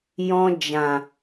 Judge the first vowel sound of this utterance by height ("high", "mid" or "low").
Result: mid